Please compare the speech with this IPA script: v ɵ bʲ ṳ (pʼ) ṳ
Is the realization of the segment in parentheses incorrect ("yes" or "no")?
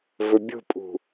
no